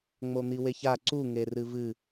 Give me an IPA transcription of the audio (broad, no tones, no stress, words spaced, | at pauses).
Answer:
ŋ͡mon̪iweça ǀu ŋerɨvɨ